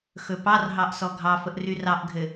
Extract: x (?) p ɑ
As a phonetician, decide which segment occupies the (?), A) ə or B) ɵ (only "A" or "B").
B